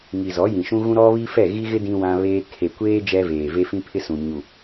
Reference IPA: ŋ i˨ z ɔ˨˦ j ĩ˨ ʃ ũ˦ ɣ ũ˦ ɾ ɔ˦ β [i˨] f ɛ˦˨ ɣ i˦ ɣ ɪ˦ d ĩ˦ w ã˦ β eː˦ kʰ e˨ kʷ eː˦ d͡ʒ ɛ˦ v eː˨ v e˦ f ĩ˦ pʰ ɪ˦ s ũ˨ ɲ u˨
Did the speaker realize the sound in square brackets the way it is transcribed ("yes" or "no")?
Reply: no